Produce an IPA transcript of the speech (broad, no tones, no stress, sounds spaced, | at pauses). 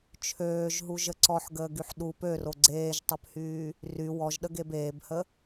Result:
t͡ʃʰ øː ʒ ɦ u ʒ ə ǀ ɔ ħ ɡ əː ɡ y ħ ɗ u p ø r o ɡ͡ǀ eː ʒ tˤ ø p h yː | r y w ɔ ʒ ɗ ə ɡ e b eː b h ə